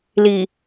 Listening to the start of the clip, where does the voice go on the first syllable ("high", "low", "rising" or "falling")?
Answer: low